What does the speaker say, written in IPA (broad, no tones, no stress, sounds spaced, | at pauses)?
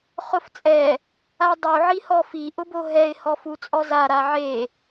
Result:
χ ʊ f t͡sʼ ɛ | a dˤ u ʕ i h ɔ f i ʔ ʊ b o ɦ ɛ ɪ̯ h ɔ f u t͡sʼ ɔ z a ɾ a ʕ e